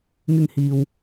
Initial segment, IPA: ŋ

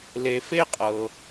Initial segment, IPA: l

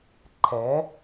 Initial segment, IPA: ǃʰ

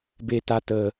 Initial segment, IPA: b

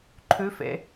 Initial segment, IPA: ǃʰ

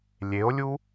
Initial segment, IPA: lʲ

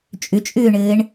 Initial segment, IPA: t͡ʃʼ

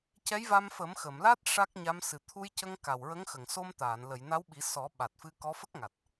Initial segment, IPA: c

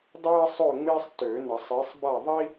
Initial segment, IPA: dˤ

